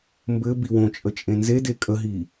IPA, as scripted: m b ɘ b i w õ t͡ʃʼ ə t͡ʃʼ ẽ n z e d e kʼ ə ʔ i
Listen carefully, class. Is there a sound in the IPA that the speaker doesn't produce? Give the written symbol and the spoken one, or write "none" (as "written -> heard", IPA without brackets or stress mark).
ʔ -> ɦ